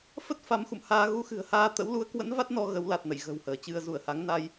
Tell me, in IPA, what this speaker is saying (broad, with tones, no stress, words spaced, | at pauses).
fə˦˥t̚ fa˨˦mxṵ˧˨mhaː˧ ɣu˧ xɨ̤˨˩ə̯haː˧t̪ə̰˧˥w lu˨˦ə̯kwə̰˧˥n va˦˥t̚ nɔ˧ ɣə˨˦wla˨˩t̚ nə̰˧˨jɣə̤˨˩whəː˧˩t͡ɕɨ˧ə̯ zu˧˩ə̯ha˨˦ŋna˧j